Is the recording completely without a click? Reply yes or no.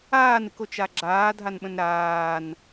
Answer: no